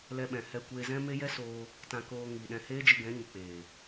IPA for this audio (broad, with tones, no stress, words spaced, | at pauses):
lɛ˧ɓɛ̃˨ hɛ˧ kʷeː˧zɛ̃˦me˦ jɛ˦soː˧ | tã˧koː˧ ŋi˨ɗɛ̃˧ heː˦d͡ʒi˧ɡɛ̃˨˦ ɲi˨k͡peː˨